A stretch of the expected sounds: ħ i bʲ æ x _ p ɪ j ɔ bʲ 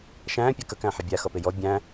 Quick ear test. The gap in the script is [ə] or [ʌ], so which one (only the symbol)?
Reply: ʌ